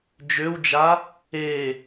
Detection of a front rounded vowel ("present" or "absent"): present